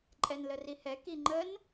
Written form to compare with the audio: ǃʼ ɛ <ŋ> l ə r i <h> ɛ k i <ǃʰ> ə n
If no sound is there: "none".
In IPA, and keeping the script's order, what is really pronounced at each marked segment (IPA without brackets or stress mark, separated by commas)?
n, h, ŋ͡ǃ